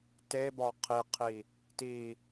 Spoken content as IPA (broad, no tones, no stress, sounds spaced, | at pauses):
t e b ɒ qʰ i qʰ i | t i